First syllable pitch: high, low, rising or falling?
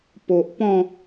low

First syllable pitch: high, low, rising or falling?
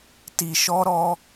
low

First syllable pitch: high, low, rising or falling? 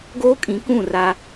high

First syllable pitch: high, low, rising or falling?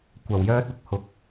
low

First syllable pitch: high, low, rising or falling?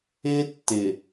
high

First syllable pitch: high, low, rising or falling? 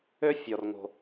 high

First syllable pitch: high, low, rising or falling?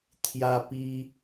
high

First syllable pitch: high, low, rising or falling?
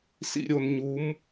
low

